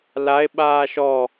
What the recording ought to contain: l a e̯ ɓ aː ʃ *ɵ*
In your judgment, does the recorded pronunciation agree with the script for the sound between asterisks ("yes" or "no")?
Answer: no